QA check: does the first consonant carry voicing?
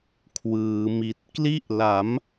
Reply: no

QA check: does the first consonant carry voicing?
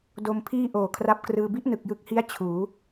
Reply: yes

